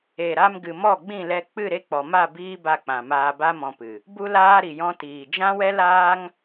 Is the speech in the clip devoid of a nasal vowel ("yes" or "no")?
no